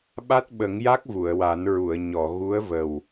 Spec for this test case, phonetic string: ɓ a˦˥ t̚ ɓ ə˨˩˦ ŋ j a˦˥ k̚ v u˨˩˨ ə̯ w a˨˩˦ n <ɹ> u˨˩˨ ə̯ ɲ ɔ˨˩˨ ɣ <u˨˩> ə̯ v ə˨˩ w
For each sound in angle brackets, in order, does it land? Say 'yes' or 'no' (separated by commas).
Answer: yes, no